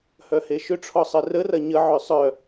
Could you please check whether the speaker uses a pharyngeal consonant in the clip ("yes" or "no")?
yes